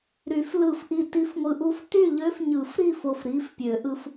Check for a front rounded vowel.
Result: present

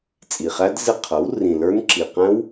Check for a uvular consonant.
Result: present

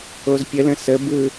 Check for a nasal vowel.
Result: present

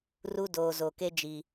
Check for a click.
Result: absent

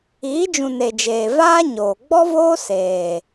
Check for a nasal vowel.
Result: present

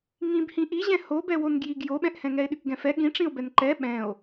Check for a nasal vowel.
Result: present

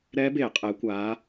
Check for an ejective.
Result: present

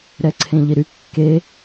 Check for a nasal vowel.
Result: present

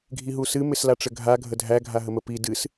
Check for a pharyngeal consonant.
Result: absent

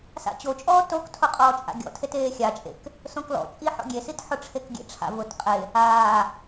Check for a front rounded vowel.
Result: absent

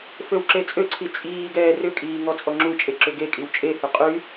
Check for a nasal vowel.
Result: absent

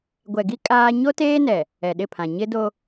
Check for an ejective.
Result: present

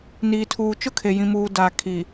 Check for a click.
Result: absent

